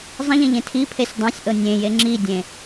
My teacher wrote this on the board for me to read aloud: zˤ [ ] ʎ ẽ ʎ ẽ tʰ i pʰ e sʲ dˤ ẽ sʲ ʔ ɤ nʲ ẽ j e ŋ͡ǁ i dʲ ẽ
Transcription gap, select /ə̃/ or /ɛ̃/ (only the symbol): ə̃